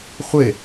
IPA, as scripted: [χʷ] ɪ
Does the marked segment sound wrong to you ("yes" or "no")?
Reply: no